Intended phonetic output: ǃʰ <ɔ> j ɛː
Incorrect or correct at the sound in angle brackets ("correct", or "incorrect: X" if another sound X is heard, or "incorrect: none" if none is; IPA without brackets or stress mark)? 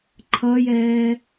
incorrect: ʌ